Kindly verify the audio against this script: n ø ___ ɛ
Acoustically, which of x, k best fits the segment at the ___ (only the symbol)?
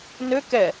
k